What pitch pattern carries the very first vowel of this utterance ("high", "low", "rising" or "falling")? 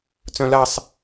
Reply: high